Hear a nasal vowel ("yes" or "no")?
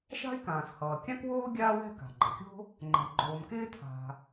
yes